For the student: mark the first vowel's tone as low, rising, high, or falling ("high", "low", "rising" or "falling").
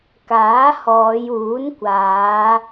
rising